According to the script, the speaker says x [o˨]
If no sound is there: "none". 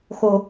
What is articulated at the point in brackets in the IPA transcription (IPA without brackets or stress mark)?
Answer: o˦